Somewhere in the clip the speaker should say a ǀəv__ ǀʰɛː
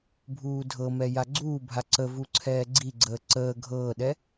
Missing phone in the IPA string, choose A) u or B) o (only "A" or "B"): A